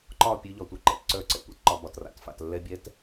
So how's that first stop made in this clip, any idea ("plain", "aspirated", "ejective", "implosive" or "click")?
click